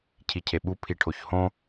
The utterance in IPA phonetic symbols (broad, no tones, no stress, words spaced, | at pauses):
cʰicʰeɓu pʰiʈʰoçhõ